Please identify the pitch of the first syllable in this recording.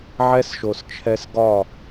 high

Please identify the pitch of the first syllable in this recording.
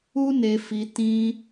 high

